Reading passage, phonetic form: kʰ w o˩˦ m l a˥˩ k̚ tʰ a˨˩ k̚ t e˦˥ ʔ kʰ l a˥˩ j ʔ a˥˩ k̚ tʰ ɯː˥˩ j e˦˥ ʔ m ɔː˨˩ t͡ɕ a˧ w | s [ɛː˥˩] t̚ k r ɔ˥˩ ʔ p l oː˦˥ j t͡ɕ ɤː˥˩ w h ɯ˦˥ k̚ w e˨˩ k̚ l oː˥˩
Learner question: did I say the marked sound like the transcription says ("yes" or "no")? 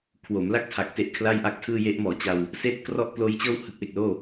no